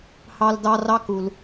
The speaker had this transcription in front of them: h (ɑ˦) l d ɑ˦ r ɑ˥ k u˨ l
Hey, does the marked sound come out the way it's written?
yes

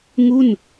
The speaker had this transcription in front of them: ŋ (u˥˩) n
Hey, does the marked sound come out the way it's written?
yes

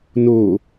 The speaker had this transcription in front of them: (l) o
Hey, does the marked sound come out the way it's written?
no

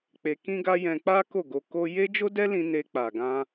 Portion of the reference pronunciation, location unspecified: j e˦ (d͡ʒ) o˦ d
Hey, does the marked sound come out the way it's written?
yes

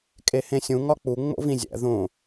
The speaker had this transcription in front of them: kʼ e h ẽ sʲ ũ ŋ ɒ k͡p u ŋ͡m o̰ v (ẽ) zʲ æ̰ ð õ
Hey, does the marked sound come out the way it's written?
no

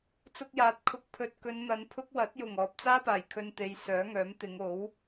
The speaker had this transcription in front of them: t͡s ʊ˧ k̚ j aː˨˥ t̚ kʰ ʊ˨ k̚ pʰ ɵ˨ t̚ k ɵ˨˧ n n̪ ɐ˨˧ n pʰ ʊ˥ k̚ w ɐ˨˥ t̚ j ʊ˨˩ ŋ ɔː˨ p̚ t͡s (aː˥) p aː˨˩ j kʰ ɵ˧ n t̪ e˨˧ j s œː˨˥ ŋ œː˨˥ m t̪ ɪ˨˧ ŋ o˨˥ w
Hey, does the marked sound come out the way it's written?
yes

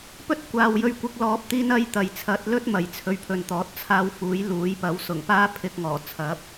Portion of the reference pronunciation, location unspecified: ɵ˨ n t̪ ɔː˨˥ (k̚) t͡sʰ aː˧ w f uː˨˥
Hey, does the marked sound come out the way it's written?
no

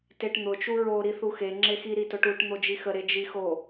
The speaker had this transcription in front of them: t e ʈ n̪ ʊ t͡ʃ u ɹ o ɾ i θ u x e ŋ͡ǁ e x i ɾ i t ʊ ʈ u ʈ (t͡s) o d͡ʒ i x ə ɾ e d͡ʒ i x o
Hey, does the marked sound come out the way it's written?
no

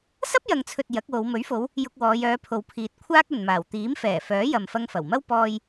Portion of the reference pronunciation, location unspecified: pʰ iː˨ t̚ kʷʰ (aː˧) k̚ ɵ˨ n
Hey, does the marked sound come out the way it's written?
no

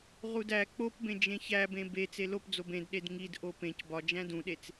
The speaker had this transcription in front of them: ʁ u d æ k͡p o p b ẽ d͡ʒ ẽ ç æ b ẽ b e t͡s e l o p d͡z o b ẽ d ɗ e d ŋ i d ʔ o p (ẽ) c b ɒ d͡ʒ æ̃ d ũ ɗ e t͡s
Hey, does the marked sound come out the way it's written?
yes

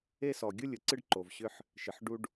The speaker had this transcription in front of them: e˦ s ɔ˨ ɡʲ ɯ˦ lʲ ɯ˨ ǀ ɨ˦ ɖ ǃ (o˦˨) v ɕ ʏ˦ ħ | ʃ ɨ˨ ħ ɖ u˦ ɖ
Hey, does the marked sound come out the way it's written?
no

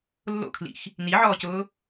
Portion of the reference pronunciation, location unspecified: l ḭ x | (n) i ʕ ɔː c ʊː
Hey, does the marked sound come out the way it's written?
yes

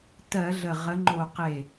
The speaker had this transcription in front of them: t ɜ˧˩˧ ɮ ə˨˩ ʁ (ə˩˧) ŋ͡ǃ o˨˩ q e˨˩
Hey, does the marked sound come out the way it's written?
yes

